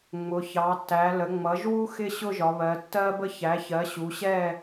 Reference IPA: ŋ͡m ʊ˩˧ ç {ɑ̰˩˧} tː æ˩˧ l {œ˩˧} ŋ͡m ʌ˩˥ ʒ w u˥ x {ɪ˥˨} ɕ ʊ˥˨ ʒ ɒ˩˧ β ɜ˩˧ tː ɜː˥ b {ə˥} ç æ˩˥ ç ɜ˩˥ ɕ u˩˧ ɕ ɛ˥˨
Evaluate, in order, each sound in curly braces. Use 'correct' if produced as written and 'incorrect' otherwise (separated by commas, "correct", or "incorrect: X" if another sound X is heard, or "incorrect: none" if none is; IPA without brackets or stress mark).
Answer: incorrect: ɑ˩˧, incorrect: ə˩˧, correct, correct